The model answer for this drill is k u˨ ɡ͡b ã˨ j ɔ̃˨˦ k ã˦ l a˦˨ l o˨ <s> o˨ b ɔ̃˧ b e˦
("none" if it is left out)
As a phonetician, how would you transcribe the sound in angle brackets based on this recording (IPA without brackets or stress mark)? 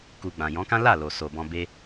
s